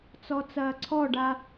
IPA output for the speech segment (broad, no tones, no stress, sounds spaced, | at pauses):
t͡s ɔ t͡s ɐː ǀʰ ɔ ɖ a